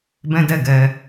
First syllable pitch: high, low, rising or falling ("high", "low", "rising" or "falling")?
high